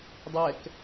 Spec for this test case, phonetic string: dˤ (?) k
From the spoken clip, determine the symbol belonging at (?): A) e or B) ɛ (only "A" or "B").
B